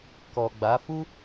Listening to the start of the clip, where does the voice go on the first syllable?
low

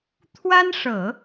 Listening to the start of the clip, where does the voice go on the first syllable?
high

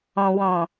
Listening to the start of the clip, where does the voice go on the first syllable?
low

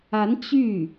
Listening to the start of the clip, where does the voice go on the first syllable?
rising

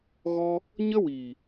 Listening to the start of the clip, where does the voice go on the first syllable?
high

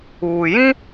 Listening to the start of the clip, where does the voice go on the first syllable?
low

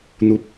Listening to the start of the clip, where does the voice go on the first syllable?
high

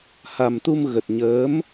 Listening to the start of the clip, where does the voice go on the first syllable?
low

